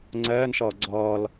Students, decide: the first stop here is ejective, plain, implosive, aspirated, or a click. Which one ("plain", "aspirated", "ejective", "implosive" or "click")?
click